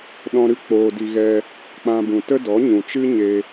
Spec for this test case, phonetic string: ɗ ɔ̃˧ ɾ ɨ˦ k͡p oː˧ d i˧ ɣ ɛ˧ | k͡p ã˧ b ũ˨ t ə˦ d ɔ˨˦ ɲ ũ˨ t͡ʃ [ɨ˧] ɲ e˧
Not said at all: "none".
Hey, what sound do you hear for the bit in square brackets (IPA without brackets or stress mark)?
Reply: ɨ˦